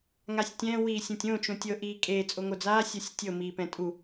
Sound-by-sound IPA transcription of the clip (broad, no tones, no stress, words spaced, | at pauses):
ŋasʲtʲɛ̃ wiːsʲõtʲõ t͡ʃõtʲɤ ʔiːkʼeː t͡sʼoŋod͡zaː sʲɔsʲtʲɤ miːpɛ̃tʼu